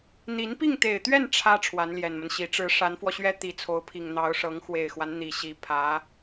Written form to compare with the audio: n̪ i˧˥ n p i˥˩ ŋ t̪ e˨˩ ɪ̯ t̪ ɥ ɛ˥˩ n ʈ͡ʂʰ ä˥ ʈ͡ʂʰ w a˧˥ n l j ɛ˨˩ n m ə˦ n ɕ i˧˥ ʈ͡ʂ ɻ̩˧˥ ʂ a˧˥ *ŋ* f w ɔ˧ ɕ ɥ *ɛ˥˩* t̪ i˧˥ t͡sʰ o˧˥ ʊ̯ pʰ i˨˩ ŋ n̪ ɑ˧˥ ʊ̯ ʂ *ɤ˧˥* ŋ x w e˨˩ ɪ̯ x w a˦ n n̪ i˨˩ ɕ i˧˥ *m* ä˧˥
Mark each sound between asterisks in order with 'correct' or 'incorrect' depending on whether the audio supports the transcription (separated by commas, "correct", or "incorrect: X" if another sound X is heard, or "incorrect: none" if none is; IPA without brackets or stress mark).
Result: incorrect: n, incorrect: ɛ˥, correct, incorrect: pʰ